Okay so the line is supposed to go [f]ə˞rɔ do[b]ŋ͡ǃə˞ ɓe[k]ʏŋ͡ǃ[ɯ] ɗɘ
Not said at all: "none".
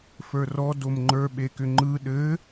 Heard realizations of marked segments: f, m, k, ɯ

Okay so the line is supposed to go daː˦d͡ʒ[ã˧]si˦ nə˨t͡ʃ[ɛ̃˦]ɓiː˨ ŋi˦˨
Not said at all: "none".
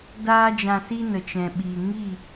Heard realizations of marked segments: ã˧, ɛ̃˨

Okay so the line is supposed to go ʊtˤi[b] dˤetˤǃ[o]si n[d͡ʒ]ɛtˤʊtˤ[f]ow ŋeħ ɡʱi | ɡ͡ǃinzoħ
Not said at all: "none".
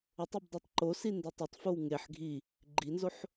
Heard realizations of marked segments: b, o, d, f

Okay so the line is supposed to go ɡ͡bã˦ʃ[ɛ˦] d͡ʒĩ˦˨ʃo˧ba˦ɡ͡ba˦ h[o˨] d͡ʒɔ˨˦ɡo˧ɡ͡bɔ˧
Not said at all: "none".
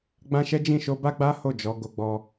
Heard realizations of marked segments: ɛ˦, o˦˨

